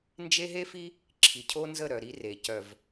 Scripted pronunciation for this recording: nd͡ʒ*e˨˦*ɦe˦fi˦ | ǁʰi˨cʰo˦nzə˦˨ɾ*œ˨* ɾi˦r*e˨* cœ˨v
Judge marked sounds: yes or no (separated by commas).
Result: no, yes, yes